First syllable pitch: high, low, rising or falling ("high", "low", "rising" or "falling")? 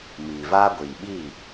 low